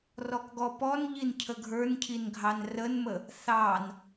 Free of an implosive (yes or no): yes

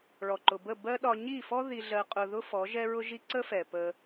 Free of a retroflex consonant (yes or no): no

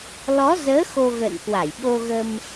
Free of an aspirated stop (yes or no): yes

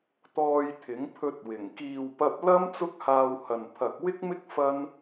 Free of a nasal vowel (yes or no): yes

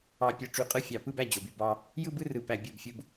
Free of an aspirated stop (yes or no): yes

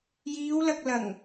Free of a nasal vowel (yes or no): yes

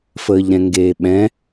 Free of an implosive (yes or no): no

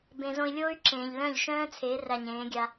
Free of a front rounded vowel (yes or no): no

